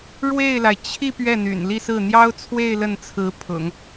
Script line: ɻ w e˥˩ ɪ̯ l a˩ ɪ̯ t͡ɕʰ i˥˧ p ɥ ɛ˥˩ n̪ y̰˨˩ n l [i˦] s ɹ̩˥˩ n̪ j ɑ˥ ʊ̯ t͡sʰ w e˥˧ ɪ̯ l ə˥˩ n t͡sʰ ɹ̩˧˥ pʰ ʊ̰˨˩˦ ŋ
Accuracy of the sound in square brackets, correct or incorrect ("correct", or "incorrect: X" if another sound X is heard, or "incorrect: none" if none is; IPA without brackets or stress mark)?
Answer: incorrect: i˥˧